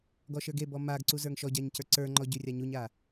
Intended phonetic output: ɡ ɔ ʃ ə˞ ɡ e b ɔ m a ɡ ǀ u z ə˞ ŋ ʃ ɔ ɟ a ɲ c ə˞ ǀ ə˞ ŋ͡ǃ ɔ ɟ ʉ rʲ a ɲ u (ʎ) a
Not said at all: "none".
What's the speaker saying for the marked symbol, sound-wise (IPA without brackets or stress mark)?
ɲ